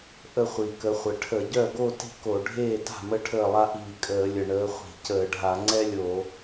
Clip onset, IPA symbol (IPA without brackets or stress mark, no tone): ʔ